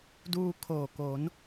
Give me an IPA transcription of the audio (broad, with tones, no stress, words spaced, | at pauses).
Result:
duː˧ kʰoː˨˩ ko˩˦n